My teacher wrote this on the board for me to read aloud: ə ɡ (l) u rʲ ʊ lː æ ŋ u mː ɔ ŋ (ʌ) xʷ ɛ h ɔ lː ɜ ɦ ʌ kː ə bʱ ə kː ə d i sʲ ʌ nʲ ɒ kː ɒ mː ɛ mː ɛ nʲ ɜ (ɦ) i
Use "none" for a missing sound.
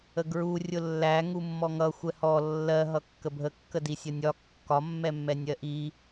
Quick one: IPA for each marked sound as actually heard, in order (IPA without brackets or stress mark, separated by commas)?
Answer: ɹ, ʌ, ʔ